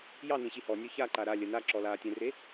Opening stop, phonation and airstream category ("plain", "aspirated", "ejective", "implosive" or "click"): click